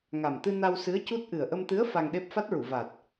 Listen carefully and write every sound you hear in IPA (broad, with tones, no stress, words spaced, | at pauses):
ŋa˨˩mt̪ɨ˧ na˧wsɨ˧˥ə̯cu˦˥t̚ ʔɨ˨˩ə̯ʔə˧mt̪ɨ˧˥ə̯ fa˧ŋɗe˦˥p̚ fa˦˥t̚ɹu˨˩˨ va˨˩t̚